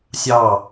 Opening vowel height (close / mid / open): open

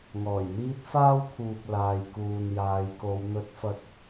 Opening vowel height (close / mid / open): mid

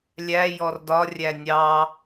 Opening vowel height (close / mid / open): open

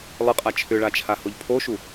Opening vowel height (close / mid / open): close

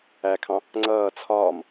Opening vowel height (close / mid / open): open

